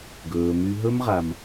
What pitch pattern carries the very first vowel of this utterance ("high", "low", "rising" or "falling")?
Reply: low